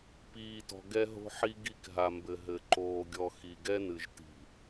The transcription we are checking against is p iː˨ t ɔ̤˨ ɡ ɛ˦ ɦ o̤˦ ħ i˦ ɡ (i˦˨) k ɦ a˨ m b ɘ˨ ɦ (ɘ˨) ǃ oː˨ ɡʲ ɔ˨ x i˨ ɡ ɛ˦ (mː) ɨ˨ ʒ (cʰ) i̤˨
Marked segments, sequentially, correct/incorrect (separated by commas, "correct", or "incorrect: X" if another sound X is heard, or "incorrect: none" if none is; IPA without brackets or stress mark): correct, correct, incorrect: n, incorrect: t